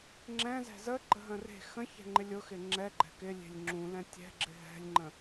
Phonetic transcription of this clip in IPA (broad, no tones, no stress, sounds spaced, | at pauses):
ŋ͡ǁ ɛ̃ z ɛ̤ z ə ɡ͡ǃ ə ɦ ə̃ r e̤ x ə̃ ç ɛ̤ ŋ͡ǃ ɪ lʲ ʊ x ɪ ŋ͡ǁ ɛ ɡ͡ǃ ɛ̤ k ɪ lʲ e̤ lʲ ŋ͡ǁ ũ l ɛ̃ tʲ ɛ̤ ɡ͡ǁ ɪ ɦ ɛ̤ lʲ ŋ͡ǃ ə̃